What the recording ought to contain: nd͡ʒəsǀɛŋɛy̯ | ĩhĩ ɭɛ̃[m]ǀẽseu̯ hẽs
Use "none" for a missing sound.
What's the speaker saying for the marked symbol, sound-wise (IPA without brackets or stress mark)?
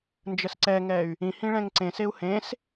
ŋ